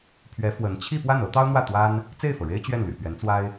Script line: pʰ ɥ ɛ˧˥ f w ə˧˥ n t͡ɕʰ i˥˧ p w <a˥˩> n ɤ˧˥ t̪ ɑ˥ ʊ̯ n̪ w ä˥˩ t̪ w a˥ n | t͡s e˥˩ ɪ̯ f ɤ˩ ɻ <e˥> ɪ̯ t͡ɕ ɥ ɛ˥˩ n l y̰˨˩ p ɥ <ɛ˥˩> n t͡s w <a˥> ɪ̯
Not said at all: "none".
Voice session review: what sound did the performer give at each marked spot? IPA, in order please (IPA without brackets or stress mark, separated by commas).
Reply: a˥˩, e˥, ɛ˧˥, a˥